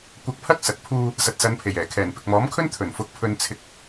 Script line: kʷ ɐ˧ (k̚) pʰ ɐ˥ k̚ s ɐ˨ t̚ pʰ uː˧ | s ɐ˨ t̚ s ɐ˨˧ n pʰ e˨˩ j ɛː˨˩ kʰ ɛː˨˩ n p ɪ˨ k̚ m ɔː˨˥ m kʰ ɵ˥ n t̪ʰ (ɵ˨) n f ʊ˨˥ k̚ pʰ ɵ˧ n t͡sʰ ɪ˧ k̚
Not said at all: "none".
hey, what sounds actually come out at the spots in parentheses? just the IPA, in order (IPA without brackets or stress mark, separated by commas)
k̚, ɵ˨˩